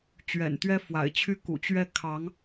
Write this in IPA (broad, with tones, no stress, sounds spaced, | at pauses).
t͡ɕ ɥ ɛ̰˨˩ n t̪ ɥ ɛ˥ f w a̰˨˩ ɪ̯ t͡ɕʰ y˥ k ṵ˨˩ t͡ɕ ɥ ɛ˥˩ kʰ ɑ˧˥ ŋ